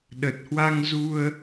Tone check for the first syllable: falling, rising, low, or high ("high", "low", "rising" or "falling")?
low